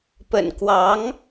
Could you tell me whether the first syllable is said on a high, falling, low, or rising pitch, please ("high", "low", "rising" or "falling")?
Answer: low